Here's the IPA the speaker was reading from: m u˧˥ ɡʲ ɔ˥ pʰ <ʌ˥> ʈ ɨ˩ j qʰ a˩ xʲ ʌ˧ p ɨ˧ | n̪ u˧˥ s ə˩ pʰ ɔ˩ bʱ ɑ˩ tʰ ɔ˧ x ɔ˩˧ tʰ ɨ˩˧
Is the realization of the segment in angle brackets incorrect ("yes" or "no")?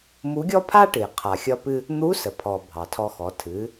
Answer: yes